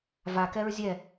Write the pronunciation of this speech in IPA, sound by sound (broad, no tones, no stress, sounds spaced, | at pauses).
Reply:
v a k ɛ ɹ zʲ ɛ